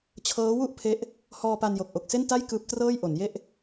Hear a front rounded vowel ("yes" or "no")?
no